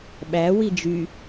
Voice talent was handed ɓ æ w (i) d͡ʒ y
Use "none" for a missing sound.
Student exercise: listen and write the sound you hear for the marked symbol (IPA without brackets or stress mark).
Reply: i